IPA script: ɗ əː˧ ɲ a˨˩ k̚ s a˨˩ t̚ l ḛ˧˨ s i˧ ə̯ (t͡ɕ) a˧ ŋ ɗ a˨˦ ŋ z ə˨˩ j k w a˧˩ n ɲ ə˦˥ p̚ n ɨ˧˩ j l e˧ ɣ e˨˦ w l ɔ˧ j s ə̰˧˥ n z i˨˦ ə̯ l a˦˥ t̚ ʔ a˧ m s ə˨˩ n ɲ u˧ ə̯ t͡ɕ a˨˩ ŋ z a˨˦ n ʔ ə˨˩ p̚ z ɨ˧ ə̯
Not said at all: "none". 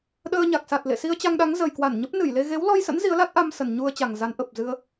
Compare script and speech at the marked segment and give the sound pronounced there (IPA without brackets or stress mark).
t͡ɕ